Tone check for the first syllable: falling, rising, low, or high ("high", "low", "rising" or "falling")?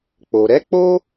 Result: low